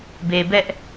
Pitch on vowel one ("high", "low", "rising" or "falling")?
low